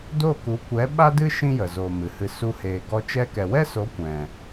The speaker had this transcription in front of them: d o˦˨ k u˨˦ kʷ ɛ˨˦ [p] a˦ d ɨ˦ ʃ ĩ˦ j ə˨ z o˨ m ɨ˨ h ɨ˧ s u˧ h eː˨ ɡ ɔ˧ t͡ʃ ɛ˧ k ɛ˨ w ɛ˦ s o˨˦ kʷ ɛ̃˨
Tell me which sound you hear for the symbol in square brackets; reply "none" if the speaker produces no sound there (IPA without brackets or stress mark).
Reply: ɓ